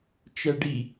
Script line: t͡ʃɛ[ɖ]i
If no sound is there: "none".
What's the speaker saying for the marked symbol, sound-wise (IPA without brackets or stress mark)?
ɖ